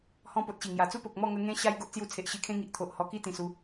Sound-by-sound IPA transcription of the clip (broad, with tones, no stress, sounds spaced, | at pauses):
h ɔ̃˧ p o˨ t̚ ɕ i˨˩ ŋ j a˨˩ t͡s u˦ p o˨ k̚ m ɔ˥˧ ŋ ə˧ ŋ ẽ˧ ɕ a˧ j ɡ o˦ ʔ t͡s j u˧ t͡sʰ e˨ ʔ ɕ i˧ kʰ ẽ˦ ŋ i˨ ʔ t̪ʰ o˨ ʔ h ɔ˧ k i˦ t̪ ĩ˨˩ s u˧